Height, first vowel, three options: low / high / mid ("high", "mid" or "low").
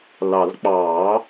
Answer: low